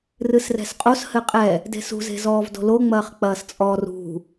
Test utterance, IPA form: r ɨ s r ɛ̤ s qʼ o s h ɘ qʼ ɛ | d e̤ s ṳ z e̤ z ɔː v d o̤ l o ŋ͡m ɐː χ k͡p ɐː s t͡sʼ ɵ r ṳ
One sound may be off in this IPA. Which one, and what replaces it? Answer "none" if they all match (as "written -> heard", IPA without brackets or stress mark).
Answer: ɵ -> ɔ